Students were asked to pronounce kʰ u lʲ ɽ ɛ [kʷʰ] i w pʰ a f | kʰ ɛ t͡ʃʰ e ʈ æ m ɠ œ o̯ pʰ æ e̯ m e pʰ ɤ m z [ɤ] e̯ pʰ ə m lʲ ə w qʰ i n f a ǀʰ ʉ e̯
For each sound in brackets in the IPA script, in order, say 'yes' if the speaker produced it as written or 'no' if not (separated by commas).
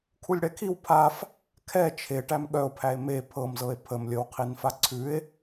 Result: no, yes